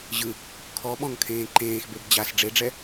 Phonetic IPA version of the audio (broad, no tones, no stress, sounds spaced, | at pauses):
ʑ ɯ | kʰ ɔ ɓ ɔ̃ ŋ kʰ ẽː ǃ ẽː x b e b d͡ʑ a s ɖ͡ʐ e ɖ͡ʐ ɛ